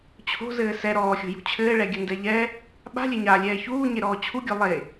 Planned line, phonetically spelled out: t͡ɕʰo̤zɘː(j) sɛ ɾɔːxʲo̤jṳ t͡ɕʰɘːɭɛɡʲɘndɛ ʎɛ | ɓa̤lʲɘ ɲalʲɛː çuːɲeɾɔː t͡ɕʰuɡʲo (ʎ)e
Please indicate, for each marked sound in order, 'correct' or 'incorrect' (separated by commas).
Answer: incorrect, incorrect